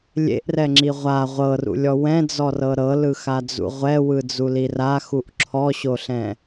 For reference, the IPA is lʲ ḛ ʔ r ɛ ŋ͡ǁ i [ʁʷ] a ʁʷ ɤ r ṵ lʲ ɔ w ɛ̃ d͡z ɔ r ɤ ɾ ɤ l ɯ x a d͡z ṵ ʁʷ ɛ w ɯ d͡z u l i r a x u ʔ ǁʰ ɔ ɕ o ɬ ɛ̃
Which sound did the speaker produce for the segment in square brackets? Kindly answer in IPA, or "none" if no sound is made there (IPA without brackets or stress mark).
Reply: ʁʷ